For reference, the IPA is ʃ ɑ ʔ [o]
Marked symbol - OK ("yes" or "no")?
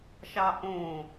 no